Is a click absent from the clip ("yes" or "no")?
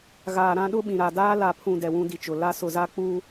yes